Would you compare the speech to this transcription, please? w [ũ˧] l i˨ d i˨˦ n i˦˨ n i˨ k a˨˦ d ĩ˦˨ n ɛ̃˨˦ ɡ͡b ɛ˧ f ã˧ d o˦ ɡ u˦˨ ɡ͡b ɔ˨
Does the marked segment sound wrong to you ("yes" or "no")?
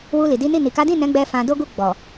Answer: yes